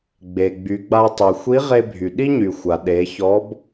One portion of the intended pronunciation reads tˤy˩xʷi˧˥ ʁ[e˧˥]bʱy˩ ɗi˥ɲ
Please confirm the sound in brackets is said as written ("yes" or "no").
no